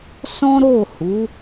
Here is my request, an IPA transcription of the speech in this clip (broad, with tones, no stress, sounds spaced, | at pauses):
s ɔ̃˦ ɾ o˦˨ h u˨˦